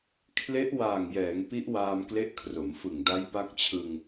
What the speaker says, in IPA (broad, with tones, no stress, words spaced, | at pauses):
kʰle˦˥ʔ waː˨˩ŋjɛː˩˦ŋ pi˦˥ʔwaː˧m kle˦˥ʔkʰro˩˦mfɯ˨˩ŋ da˦˥jpa˦˥k̚t͡ɕʰɯ˧ŋ